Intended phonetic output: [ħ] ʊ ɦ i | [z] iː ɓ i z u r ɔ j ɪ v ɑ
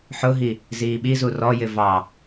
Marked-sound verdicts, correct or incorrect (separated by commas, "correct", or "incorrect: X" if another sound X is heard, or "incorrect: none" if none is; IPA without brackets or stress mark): correct, correct